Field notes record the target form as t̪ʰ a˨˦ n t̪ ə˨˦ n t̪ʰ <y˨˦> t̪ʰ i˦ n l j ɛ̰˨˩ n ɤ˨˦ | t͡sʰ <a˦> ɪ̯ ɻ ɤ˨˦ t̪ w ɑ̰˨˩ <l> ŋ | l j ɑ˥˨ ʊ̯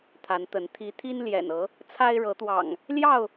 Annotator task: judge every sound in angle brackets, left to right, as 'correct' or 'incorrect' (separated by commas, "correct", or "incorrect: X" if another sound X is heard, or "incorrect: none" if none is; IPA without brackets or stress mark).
incorrect: i˨˦, correct, incorrect: none